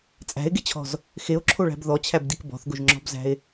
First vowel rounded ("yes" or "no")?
no